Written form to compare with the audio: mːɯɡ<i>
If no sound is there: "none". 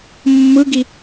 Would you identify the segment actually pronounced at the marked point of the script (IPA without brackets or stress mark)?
i